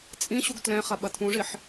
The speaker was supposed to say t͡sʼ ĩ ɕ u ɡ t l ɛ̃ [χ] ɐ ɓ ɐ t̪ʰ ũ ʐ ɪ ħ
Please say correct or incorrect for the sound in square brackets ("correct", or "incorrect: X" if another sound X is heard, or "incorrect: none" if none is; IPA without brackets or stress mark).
correct